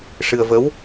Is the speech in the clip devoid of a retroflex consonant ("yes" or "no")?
no